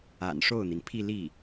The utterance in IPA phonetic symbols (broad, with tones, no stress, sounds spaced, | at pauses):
a̰˨˩ n ʂ o˥˩ ʊ̯ n̪ i˩ n pʰ i˥˧ l i˥˩